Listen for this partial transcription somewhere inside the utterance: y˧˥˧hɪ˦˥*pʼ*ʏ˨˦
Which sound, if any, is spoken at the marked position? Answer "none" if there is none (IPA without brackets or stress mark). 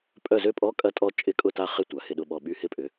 pʼ